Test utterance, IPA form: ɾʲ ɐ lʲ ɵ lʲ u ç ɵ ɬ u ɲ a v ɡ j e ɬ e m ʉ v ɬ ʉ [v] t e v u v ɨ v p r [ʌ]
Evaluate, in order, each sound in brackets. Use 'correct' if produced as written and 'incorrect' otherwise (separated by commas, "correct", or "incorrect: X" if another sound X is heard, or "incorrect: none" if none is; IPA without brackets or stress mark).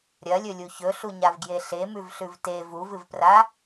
correct, incorrect: a